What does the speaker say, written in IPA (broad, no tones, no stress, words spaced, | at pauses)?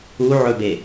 uʕɵbe